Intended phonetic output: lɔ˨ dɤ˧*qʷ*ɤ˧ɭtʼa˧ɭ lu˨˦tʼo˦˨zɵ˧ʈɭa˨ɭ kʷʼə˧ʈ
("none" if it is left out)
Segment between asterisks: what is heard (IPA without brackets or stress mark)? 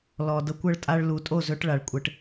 kʷ